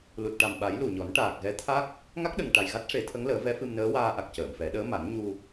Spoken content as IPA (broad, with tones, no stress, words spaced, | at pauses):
lu˨˩t̚ʈa˨˩mɓa˨˩˦j lu˨˩ɲɔ˨˩˦n ʈaː˨˩k̚ɣɛ˧˥t̪ʰa˦˥k̚ | ŋa˦˥k̚ɗə˨˩ŋ ʈa˨˩jɣa˦˥t̚ʂe˨˩˦ t̪ʰə˧˥ŋləː˨˩˦vɛ˧˥ fɨ˧mnəː˧˥waː˧ʔa˨˩k̚ cəː˨˩˨mfɛ˨˩˦ ɗəː˧˥ma˨˩˦n ɲu˧